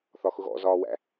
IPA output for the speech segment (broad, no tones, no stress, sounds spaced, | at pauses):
θ ɒ x ʊ ɣ ɔ̰ z ɒː w æ̰